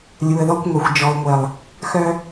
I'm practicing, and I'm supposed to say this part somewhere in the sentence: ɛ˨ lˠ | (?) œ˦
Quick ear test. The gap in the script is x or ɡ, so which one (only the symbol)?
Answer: x